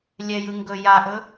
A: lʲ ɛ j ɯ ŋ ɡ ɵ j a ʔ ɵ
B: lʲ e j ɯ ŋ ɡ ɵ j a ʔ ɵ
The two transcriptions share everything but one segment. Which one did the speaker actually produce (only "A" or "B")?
A